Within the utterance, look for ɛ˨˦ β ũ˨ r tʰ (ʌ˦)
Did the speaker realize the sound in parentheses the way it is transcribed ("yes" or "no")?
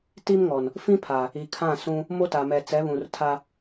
no